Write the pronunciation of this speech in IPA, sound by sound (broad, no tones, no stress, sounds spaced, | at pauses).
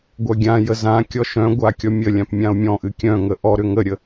ɡʷ œ ɡʲ ã j ə z ã kʲ ɔ ʃ œ̃ ɡʷ a kʲ ɔ mʲ ə lʲ ã p mʲ ã o̯ mʲ ɔ̃ ʔ ɨ kʲ œ̃ ŋ ə ʔ ɔ ɾ ʏ ŋ ə ɾʲ ə